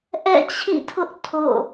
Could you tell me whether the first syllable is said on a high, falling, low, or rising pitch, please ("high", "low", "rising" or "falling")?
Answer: falling